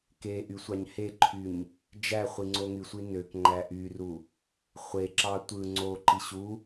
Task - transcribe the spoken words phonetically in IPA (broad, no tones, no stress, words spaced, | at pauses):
keʔy sʷɑɲheǃʰyɲ | d͡ʒæχʷi ŋ͡ǀoŋysʷi nøkŋ͡ǃæ ʔyru | χʷeǁɑ tʷɯ ŋ͡ǀoǃi ɕu